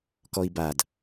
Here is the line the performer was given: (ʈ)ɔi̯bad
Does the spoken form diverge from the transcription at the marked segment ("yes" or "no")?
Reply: yes